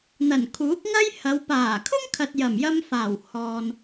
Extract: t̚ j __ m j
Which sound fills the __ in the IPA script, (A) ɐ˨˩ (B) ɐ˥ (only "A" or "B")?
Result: A